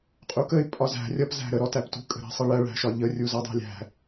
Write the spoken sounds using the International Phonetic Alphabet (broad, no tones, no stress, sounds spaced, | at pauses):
qʼ u k ə ɪ̯ pʼ ɒ z æ̤ rʲ ʌ p z æ̤ ɾ ə ɾ ɔ t æ p t ṳ kʼ ə̤ ɾ æ̤ sˤ ə ɭ ɜ ɭ æ̤ ʃ ɒ ʎ ə rʲ u z ʌ dˤ æ̤ lʲ æ̤